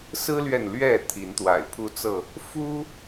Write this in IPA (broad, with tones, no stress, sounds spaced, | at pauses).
s ɹ̩˦ l ɥ ɛ˨ n l ɥ ɛ˥˨ t̪ʰ i˨˦ n t̪ w a̰˨˩ ɪ̯ pʰ u˦ t͡s ɤ˥˨ | f u˦